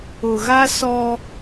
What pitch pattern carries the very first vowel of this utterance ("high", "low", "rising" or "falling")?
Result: low